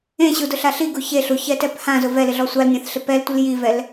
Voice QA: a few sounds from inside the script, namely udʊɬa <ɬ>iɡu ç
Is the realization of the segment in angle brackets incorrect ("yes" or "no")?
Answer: no